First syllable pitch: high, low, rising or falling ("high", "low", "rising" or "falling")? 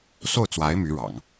falling